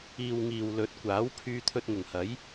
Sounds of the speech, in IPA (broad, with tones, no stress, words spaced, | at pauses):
iː˨w ŋiː˨w lɵ˨˥t̚kʷaː˨˥w pʰyː˧t̪ʰɵ˧t̚ŋʊ˨˩ŋhɐ˨˥j